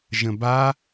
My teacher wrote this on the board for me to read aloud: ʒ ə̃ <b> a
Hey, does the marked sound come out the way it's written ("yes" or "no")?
yes